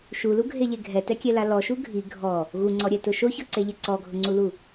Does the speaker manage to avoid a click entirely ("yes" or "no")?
no